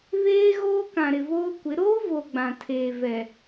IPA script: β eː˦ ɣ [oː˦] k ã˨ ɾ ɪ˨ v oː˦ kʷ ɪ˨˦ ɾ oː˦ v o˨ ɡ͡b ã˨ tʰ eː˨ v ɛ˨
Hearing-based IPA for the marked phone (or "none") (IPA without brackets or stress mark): oː˦